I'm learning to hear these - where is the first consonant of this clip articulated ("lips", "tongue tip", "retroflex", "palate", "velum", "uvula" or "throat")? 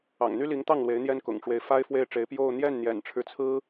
velum